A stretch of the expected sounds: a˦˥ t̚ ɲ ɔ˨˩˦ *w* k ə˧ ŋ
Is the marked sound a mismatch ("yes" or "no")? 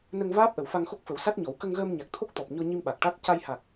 no